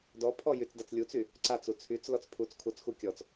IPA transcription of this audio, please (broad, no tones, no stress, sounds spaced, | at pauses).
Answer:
d ɔ pʰ ɔ j y t͡s d a t͡s lʲ u t͡s y | ǀ a t͡s u t͡sʰ y t͡s l ɔ t͡s pʰ u t͡s kʰ u t͡s x u kʲ ɔ t͡s